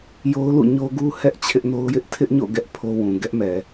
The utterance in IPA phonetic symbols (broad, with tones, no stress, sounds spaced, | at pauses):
j o˦ ʊ̯ l ṵ˦˨ ɲ o˦ ɡ u˦ h ɛ˦ ʔ t͡ɕʰ ɪ˦ ʔ n o˦ ʊ̯ j ɪ˦ ʔ tʰ ɪ˦ ʔ ɲ o̰˦˨ ɡ ɛ˦ ʔ pʰ o˦ w ũ˨ ɡ ɛ˦ ʔ m ɛ˨